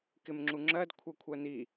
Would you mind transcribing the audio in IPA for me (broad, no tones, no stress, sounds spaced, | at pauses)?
k ɪ m ŋ͡ǁ u ŋ͡ǁ ɜ d kʷʰ ʌ kʷʰ ɜ n i